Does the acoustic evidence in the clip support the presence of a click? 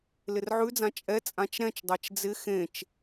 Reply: no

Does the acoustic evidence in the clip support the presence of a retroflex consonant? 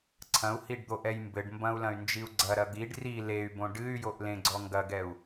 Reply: yes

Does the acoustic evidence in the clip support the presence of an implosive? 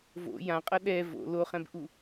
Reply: yes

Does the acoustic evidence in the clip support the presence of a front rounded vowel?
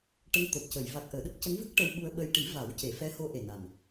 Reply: no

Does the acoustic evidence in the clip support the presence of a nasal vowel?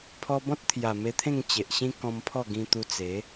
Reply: yes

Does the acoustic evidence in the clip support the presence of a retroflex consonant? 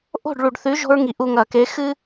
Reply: yes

